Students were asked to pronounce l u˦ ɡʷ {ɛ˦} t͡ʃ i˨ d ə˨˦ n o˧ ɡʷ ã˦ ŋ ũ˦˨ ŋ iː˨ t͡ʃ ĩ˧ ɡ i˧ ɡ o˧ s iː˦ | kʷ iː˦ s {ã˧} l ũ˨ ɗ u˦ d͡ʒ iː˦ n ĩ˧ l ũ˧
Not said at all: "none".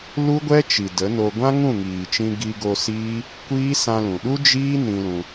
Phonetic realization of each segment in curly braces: ɛ˦, ã˧

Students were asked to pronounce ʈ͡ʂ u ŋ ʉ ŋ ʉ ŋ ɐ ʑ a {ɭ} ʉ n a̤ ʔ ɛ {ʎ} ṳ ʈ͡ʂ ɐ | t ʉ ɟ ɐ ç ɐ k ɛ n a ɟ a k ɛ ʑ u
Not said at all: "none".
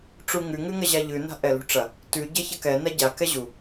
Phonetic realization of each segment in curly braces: ʎ, l

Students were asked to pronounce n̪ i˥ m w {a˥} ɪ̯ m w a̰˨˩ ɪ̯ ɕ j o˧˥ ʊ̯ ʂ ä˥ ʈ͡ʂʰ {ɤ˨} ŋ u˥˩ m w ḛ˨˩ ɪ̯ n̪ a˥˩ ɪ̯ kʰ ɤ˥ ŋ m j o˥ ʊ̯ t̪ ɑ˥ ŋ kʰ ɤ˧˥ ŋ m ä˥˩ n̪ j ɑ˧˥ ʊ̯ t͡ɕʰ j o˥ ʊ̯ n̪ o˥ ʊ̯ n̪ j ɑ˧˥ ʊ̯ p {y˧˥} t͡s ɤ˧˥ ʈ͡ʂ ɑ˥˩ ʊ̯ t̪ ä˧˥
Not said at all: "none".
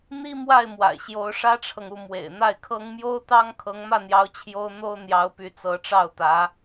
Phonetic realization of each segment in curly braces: a˥˩, ɤ˨, y˧˥

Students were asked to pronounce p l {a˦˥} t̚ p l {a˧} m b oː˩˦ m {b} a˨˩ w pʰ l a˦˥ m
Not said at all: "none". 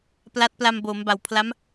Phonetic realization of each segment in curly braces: a˦˥, a˧, b

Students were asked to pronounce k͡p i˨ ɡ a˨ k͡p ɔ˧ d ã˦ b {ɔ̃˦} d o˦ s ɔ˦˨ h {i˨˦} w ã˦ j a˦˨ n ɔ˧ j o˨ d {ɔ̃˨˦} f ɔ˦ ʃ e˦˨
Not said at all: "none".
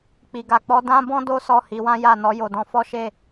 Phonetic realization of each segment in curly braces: ɔ̃˦, i˨˦, ɔ̃˨˦

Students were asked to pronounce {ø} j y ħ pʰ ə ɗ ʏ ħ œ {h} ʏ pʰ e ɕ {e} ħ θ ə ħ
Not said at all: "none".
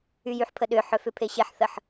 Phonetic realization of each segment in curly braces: y, f, e

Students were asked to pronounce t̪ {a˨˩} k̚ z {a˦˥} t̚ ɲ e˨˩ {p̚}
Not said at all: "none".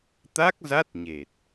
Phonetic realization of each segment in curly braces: a˦˥, a˦˥, t̚

